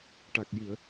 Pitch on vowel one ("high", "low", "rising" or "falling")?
low